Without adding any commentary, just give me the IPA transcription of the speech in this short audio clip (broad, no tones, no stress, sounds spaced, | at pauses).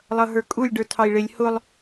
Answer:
lˠ ʌ ɦ ə˞ kʼ u lʲ ɖ ə˞ tʰ ɑ i̯ ɭ ɪ lʲ h ʊ lˠ